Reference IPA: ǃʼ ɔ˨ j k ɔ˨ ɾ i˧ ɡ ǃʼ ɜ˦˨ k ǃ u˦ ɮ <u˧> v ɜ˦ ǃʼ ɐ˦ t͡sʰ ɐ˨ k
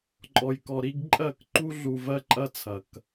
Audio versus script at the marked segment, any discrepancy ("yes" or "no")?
no